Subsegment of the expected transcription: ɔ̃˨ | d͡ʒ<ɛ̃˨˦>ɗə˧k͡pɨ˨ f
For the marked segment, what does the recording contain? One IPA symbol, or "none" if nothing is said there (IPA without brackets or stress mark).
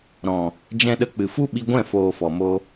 ɛ̃˧